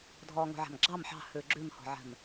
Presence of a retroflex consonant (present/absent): absent